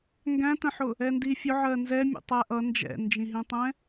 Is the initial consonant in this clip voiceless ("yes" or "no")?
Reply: no